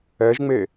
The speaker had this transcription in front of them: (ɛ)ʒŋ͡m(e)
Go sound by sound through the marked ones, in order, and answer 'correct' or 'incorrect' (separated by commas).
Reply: correct, correct